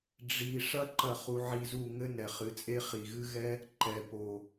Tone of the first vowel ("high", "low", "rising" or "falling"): low